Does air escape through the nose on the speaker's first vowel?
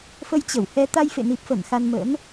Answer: no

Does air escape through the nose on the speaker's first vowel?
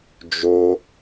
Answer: no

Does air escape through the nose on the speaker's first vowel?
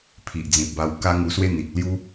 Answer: no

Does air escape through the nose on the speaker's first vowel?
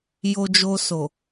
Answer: no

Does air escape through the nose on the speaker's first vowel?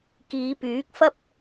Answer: no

